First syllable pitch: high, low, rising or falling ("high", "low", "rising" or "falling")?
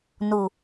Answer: low